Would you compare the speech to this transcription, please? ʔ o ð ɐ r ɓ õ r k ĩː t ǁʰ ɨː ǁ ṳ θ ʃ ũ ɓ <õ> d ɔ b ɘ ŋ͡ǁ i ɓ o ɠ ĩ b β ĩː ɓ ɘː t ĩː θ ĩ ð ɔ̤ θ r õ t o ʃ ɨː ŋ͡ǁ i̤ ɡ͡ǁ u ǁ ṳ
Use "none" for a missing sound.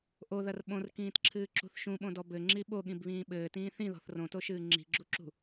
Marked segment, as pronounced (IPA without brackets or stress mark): õ